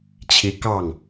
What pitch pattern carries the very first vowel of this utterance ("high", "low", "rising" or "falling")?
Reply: rising